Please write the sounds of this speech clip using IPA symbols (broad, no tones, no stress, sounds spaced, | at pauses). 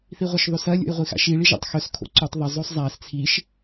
θ i ʁʷ ɐ ʃ ðˤ ʉ s ɐ lʲ o̰ j ʁʷ i x a̰ ʃ i ɭ i ʒ a̰ tˤ x ɵ s kʰ o̰ ǀ o tˤ ðˤ ɐ zˤ o sˤ zˤ a s t͡sʰ i ʃ